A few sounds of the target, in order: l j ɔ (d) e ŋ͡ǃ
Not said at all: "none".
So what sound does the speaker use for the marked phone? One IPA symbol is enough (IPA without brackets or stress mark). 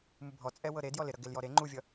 ɾ